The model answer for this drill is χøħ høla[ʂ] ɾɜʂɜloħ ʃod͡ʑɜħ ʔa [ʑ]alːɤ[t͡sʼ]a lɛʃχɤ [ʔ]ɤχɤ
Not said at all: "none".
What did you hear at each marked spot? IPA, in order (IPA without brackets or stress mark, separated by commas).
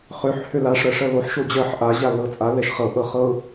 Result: ʂ, ʑ, t͡sʼ, ʔ